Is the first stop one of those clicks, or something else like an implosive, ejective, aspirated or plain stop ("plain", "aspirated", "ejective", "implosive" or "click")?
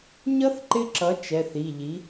click